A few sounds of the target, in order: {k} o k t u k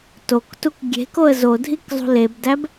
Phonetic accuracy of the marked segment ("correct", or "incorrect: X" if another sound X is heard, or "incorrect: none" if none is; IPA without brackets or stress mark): incorrect: t